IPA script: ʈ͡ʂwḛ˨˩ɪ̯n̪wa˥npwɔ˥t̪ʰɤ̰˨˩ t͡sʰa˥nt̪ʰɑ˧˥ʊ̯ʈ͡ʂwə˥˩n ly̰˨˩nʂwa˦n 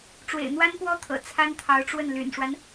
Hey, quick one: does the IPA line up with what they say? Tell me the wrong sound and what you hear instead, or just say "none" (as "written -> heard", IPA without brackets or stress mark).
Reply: none